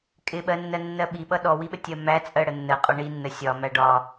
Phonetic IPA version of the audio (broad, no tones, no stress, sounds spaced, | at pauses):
kʼ ɪ ɓ ɜ nː ɜ nː ɜ ɓ i ɓ ʌ ɗ ɔ w i ɓ ə tʲ ɜ m æ t͡sʼ ɜ ɽ ə nː ə qʼ ɒ ɳ i nː ə sʲ ɒ m æ ɖ ɒ